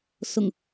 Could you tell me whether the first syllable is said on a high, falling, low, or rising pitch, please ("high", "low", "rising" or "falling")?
low